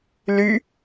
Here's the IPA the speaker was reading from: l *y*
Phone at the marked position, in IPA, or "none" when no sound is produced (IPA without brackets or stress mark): y